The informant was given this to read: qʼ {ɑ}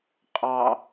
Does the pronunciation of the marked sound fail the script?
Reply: no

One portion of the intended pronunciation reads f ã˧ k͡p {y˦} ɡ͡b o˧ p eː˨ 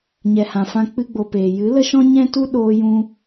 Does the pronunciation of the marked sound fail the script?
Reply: yes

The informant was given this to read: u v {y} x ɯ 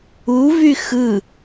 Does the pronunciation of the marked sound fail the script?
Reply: no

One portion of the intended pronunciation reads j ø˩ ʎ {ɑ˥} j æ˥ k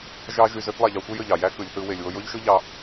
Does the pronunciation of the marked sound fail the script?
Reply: yes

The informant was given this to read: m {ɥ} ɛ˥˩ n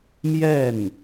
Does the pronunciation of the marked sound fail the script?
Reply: yes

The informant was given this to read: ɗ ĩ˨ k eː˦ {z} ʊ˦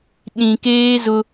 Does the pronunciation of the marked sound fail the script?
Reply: no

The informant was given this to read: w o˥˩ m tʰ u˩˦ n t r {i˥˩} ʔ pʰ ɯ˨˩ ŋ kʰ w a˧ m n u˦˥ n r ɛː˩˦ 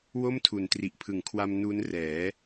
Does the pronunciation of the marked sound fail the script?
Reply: yes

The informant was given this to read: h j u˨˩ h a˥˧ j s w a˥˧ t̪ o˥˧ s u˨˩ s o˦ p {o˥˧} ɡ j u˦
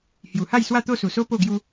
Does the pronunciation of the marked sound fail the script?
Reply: no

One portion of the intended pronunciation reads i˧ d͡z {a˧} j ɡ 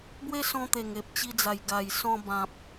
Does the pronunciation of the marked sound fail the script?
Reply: yes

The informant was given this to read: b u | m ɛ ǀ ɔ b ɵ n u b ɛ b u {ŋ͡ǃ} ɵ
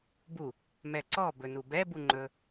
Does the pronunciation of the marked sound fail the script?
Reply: no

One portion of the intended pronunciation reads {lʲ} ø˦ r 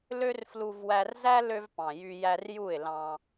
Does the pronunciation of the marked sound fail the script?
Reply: yes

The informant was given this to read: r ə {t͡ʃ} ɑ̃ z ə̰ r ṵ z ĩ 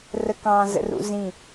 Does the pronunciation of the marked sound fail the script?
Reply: yes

